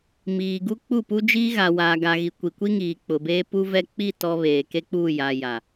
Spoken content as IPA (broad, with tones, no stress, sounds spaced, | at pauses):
m iː˨ ɡ u˦ k͡p u˦˨ p u˦ d͡ʒ iː˦ ɣ a˨ w aː˨ ɡ a˨ ɣ i˨ kʷ i˨ kʷ i˦ ŋ iː˨ k͡p ʊ˨ b eː˦ p u˦ v ɛ˦ k͡p i˦˨ t ɔ˦ β eː˨ k e˦ k͡p uː˦˨ j a˨ j a˨